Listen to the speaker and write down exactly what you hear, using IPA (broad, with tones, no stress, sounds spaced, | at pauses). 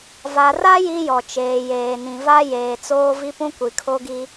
v a˨ r a˦ j i˦ j ɔ˨ t͡ʃ eː˨ j eː˨ n ĩ˨ v a˦ j eː˨ t͡s oː˦ v i˦ p ũ˦ kʷ i˨ kʰ o˦ ɡ i˦